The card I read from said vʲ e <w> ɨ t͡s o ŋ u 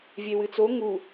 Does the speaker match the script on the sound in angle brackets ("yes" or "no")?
yes